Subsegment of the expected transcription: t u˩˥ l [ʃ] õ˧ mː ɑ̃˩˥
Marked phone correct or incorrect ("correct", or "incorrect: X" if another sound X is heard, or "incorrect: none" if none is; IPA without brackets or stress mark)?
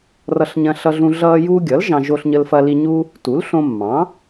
incorrect: ɬ